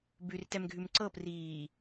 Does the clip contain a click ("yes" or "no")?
yes